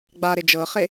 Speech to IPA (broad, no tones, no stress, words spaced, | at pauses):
ɡ͡baɾe d͡ʒɤχe